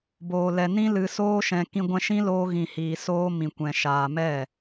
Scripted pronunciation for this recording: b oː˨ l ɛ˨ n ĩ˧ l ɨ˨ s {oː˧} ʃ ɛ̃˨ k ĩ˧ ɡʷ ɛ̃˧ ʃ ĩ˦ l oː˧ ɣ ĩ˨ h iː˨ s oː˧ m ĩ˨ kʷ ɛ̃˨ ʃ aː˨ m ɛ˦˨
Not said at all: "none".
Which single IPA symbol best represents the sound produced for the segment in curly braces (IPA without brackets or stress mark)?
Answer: oː˧